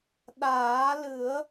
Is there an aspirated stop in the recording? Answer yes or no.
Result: no